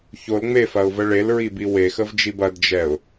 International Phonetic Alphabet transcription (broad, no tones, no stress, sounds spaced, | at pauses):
ç o l ŋ͡m e f ɐ ʊ̯ v ə ɭ e l ɹ i b i w e x ə v d͡ʒ i b ɐ d d͡ʒ ɛ ʊ̯